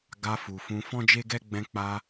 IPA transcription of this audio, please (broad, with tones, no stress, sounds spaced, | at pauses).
ɡ a˧ f u˨ f ũ˧ f ɔ̃˦ d͡ʒ e˦ ɡ ɛ˦ ɡ͡b ɛ̃˧ k͡p a˧